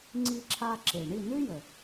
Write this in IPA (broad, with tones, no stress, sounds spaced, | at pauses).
ŋ͡ǀ i˧ ǁʰ a˧ ǁ e˩ ɳ i˥˩ n ʉ˥ j ə˩